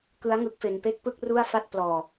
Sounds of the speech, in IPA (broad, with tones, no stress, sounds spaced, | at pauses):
k ɯ˦˥ a̯ ŋ ɯ˦˥ k̚ f e˧ n p e˥˩ k̚ p ɯ˥˩ k̚ r u˥˩ a̯ f a˥˩ t̚ p l ɔː˨˩